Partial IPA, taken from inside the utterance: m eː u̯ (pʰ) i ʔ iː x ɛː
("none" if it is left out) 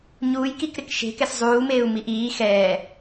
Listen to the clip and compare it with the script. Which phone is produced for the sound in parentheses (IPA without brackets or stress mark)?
m